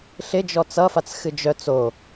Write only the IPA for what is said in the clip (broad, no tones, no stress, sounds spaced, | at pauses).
ɬ ɪ d͡ʒ ɔ t͡s ʌ f a t͡s x ɨ d͡ʒ œ t͡s o